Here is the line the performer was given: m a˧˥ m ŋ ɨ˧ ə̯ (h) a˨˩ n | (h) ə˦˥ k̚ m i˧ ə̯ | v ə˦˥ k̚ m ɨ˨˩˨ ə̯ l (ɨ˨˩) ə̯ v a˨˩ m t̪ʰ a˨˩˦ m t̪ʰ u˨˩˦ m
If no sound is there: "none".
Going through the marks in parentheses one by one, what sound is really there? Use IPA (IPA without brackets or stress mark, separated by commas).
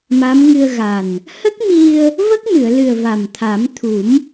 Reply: ɣ, h, ɨ˨˩